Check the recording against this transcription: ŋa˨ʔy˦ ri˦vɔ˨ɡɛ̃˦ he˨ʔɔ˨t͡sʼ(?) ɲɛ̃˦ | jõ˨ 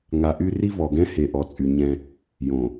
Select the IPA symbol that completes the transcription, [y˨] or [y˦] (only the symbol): y˨